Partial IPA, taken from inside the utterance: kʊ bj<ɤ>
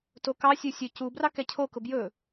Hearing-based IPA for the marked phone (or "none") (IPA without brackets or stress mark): ɵ